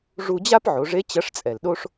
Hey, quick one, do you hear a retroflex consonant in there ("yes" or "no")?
yes